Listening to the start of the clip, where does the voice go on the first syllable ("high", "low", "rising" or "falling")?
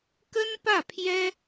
high